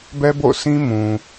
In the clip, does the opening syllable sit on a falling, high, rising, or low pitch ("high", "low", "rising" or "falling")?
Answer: high